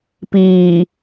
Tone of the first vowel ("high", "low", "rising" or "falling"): low